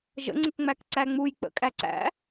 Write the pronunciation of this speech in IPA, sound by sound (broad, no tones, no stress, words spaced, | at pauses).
ʒə̰ŋ͡ǀək ŋ͡mækǀæŋ͡muj k͡pə̰kʼæǀæ̰